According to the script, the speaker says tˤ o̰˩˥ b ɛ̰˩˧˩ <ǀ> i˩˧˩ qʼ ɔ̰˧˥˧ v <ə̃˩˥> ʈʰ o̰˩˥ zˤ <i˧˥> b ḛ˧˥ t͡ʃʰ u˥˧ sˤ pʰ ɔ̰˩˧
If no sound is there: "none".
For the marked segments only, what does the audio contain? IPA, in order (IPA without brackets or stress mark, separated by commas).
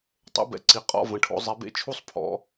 ǀ, ə̃˩˧˩, i˩˧